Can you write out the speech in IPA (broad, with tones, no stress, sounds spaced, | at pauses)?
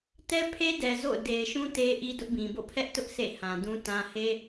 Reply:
t ɛ˦ pʰ e˦ d ɛ˨ z o̰˦˨ ʊ̯ d e˨ ɪ̯ ʃ ũ˦ t e˦ ʔ i˦ d ʊ˦ ʔ b ĩ˨ b o̰˦˨ pʰ ɛ˦ ʔ t ʊ˦ ʔ s ḛ˦˨ h ã˨ d ũ˦ t ã˦ h e˦